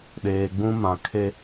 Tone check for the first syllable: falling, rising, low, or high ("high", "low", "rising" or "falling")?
low